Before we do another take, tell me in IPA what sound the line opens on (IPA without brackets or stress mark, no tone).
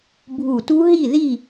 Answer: bʱ